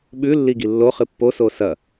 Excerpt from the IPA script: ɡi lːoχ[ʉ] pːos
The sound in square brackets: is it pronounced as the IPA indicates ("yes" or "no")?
no